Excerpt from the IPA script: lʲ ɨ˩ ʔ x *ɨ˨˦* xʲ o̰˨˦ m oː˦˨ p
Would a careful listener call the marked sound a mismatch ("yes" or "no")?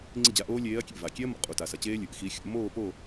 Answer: yes